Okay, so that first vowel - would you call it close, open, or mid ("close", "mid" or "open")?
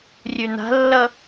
close